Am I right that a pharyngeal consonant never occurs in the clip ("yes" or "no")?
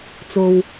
yes